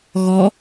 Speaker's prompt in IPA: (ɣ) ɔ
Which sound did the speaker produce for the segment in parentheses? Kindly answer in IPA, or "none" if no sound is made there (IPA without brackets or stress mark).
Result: ɣ